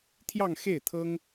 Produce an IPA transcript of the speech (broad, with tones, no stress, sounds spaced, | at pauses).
t̪ʰ j ɑ˥˧ ŋ x e˥˩ ɪ̯ t̪ʰ ɤ˥ ŋ